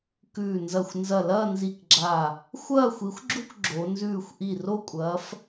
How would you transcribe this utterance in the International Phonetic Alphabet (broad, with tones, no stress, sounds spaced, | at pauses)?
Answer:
k ʉː˧˩ n z ɐ˧˩ xʷ n z ɐ˧˩ l ɐː˥˧ n z i˧˩ k ɡ͡ǁ a˧˩ | xʷ ɐː˥˧ xʷ i˨˦ xʷ ɡ͡ǁ u˥˧ k ɡ͡ǁ o˨˦ n z ʉː˥˧ xʷ ʔ i˧˩ r o˥˧ kʷʼ ɐː˨˦ f